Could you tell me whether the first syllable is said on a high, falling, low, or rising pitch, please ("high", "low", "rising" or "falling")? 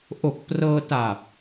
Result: low